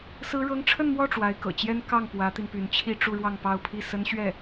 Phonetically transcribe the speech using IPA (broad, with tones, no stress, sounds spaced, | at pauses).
s ɹ̩˥ ɻ ɤ˥ ŋ ʈ͡ʂʰ ə˥˧ n m w ɔ˥˩ ʈ͡ʂ w a˧˥ ɪ̯ k ɤ̰˨˩ t͡ɕ j ɛ˥ n k ɑ˥˩ ŋ p w ä˧˥ t̪ i˧ n p y˧˥ n t͡ɕʰ i˥˧ ʈ͡ʂ u˥˧ ɻ w ɑ˥˧ ŋ p ɑ˥˧ ʊ̯ pʰ i˥˩ s ə˥ n ɕ ɥ ɛ˥˩